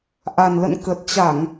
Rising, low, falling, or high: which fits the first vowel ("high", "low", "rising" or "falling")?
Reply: low